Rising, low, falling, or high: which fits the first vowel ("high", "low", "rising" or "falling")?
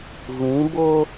rising